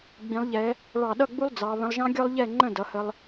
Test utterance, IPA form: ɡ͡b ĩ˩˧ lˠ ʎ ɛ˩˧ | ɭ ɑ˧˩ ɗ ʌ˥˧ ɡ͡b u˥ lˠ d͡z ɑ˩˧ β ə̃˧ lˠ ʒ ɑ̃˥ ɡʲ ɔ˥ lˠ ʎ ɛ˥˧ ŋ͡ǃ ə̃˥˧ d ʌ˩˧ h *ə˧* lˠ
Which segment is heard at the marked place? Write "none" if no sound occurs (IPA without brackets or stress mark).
ə˧